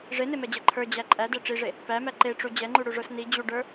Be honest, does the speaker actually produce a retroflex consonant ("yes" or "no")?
yes